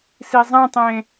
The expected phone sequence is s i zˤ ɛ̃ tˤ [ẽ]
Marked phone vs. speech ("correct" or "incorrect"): correct